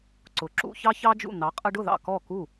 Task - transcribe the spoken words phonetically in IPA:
ǀ ʊ˩˥ ǁ ṵ˧ ç ɑ˥ ç ɑ˥ d͡ʒ ṵ˥˩ n̪ ɑ˩˥ qʼ ə˧ ɖ ʊ˥˩ ð ɑ̰˥˩ k ɔ˥˩ k u˥˩

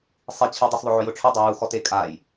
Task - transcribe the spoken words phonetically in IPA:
sˤ i t͡ɕʰ ɛ dˤ i s ðˤ ʊ ʕ ʊ j ʊ ʈ͡ʂʰ ʊ dˤ ʊ j u x ɔ t e kʼ a j

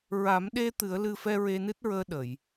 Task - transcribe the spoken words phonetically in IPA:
ɹ a˨˩˦ m ɗ e˧ t̪ ɨ˨˩˦ ə̯ l ɨ˧ f ɛ˧ ɹ e˧ n ɨ˦˥ t̚ ɹ əː˧ ɗ ə˨˩˨ j

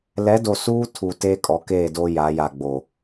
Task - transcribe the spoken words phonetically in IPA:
l ɛ˨˦ d o˨ s uː˦ tʰ u˨ t eː˦ kʼ ɔ˨˦ k eː˦˨ d o˦ j a˨˦ j a˨ ɡ͡b o˨

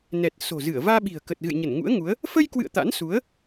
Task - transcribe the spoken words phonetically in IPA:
n ɛ˨˩ t̚ s o̤˨˩ z ɨ˧˩ ə̯ v aː˧ ɓ i̤˨˩ ə̯ k ə˨˩ t̚ ɣ ɨ̰˧˨ j ɲ ə˧˩ n ŋ ṵ˧˥ ə̯ ŋ u˨˦ ə̯ | f ə˧ j k w ɨ̰˧˨ ə̯ t̪ a̰˧˥ n s u˨˦ ə̯

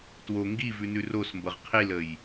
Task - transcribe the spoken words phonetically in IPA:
t w o ŋ ɡ i v ʉ n ʉ r o s m b ɤ ʁ qʰ i l ə j

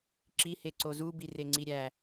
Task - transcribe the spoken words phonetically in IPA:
ǁ i h e ǀ o z u b i r e ŋ͡ǀ i ɾʲ æ

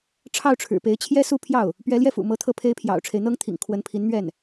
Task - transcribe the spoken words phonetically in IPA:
ʈ͡ʂʰ ɑ˥˩ ʊ̯ ʈ͡ʂʰ ɻ̩˨˩ p e˧˥ ɪ̯ t͡ɕʰ j ɛ˥ s u˥˧ pʰ j ɑ˥˩ ʊ̯ | p ɥ ɛ˧˥ l j ɛ˥˩ f ṵ˨˩ m ɤ˧˥ t̪ʰ ɤ˥˩ pʰ e˥ ɪ̯ pʰ j ɑ̰˨˩ ʊ̯ ʈ͡ʂʰ e˦ ɪ̯ n̪ ɤ˥ ŋ t̪ʰ ḭ˨˩ ŋ kʰ w ə˧˥ n pʰ i˧˥ n n̪ ɥ ɛ˥˩ n

